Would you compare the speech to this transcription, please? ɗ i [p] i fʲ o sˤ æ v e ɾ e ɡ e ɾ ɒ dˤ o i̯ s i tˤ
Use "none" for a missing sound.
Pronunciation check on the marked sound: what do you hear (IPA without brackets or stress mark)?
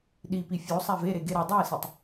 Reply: p